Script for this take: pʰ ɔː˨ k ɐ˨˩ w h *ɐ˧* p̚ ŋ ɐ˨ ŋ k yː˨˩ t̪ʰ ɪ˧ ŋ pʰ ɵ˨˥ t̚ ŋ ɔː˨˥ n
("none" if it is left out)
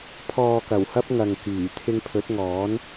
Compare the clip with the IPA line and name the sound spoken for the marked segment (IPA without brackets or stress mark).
ɐ˧